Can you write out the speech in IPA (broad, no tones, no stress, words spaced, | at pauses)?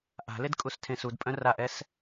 ʔa̤led kʼustʰẽsudpʼœ̃ raʔɛs